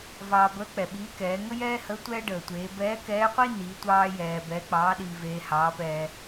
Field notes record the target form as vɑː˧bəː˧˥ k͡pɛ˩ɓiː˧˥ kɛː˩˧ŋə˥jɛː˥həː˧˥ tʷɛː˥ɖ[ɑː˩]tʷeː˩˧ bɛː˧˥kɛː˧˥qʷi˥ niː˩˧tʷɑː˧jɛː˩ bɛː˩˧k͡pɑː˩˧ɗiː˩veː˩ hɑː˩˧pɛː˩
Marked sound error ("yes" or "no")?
yes